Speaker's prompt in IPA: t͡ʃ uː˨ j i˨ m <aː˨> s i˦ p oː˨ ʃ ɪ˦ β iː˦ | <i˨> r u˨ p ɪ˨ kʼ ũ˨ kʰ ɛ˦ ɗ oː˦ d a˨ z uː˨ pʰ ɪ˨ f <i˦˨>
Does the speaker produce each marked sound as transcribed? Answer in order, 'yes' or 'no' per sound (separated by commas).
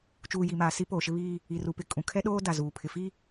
yes, yes, no